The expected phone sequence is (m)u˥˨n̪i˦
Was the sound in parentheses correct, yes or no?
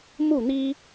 yes